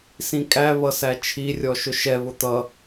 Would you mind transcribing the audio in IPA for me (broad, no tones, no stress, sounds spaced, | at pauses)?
s ĩ kʼ æ β ʌ s æ t͡ʃʰ i rʲ ɔ ʃ ʊ ʃ ɛ β ʊ t̪ ʌ